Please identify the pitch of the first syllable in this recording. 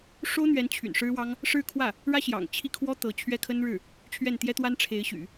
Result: high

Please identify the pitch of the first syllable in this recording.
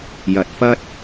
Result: low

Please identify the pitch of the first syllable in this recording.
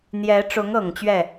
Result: rising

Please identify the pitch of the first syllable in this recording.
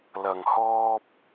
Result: low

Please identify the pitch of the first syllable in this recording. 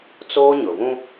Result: high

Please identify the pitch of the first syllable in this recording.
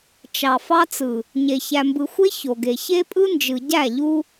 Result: low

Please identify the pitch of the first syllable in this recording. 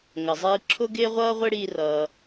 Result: low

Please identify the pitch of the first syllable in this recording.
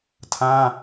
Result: high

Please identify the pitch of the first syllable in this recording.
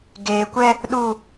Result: low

